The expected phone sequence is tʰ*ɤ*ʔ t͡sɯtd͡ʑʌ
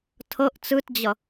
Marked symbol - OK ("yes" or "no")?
yes